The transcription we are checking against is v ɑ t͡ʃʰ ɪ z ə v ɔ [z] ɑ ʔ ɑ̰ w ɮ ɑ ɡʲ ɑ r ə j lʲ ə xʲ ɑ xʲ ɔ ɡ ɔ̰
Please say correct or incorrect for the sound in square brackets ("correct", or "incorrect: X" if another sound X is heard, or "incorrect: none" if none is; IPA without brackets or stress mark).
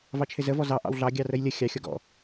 correct